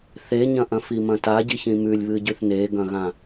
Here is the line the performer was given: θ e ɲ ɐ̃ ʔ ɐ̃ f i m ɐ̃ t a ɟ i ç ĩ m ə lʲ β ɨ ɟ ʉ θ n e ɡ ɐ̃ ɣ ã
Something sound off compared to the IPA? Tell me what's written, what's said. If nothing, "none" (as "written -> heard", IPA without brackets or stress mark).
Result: ə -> ʉ